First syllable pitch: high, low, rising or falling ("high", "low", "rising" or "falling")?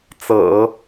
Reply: low